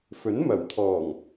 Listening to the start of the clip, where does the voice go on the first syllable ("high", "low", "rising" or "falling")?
rising